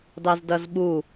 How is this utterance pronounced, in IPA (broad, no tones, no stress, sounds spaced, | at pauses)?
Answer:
d ɑ z d ʌ z ɓ u